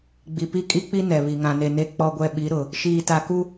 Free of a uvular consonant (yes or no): yes